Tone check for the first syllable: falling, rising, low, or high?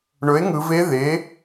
rising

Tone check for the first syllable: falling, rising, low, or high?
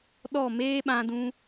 falling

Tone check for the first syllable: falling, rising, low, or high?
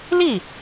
falling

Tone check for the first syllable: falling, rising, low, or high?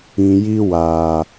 low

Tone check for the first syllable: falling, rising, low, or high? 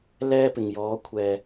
high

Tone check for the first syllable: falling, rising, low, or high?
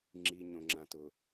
low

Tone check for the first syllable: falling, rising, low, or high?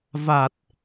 low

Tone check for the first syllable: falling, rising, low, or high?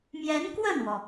rising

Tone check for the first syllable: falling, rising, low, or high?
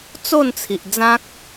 falling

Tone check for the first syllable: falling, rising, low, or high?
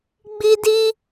high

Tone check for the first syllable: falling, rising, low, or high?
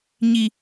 high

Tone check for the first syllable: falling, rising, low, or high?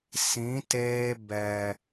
rising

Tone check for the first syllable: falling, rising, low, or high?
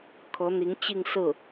rising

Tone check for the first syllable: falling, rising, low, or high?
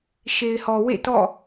low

